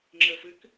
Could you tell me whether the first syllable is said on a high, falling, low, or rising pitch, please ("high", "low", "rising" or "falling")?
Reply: low